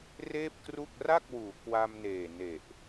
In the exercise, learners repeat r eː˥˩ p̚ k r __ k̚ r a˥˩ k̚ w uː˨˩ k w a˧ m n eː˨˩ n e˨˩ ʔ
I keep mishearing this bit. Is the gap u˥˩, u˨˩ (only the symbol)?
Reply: u˥˩